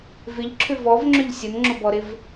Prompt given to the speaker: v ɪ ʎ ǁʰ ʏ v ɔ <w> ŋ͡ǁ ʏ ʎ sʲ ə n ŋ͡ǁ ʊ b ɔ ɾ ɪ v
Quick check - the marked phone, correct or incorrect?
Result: incorrect